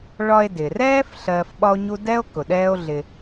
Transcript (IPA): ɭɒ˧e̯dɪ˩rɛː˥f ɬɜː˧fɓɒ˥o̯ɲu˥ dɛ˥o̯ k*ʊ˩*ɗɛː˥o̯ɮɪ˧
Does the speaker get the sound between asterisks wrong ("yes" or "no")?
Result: no